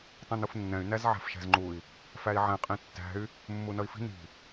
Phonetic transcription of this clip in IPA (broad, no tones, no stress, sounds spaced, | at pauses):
tˤ ɛ̃ n u f nː ɛ̃ y̯ n æ z ʕ æ̤ f ʃ æ̤ z ŋ͡ǃ u i̯ | f æ i̯ ʕ ɛ̃ qʼ ĩ tː æ̤ y̯ | mː u n ʌ i̯ f i̤ n i̤